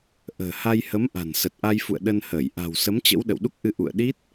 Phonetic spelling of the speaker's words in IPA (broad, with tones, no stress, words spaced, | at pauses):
ʔə̤ː˨˩ha˧jhə˨˦mʔa̤˨˩n sə˨˩t̚ʔa˧jfṵ˧˨ə̯ ɗə˧nhəː˧˩j ʔa̤˨˩wsə˨˦mt͡ɕə̰˧˥w ɗə̰˧˨wɗu˦˥k̚ʔɨ˧ ʔṵ˧˨ə̯ɗi˦˥t̚